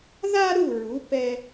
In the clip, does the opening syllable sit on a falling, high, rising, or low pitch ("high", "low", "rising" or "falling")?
high